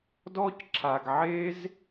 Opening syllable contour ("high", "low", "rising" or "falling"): high